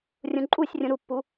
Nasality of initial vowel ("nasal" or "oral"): nasal